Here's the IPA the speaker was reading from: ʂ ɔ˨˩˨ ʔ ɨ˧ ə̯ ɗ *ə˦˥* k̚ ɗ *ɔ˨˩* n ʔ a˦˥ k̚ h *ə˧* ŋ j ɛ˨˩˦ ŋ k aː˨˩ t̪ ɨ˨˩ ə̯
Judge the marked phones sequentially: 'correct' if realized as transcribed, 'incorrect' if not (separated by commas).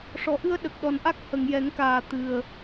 incorrect, correct, incorrect